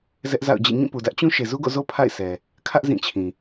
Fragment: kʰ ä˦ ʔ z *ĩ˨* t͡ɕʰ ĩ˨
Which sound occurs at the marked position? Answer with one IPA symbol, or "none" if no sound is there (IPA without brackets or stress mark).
ĩ˦˨